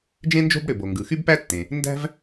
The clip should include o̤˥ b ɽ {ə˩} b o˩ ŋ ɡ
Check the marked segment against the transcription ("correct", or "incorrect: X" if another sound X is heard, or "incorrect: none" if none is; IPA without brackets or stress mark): incorrect: ø˩